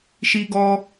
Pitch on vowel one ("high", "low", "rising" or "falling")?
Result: high